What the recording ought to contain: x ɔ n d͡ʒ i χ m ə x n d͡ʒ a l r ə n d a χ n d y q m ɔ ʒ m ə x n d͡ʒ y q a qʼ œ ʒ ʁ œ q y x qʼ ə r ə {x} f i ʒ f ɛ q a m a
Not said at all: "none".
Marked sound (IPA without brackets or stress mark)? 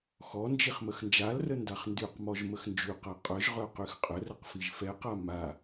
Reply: q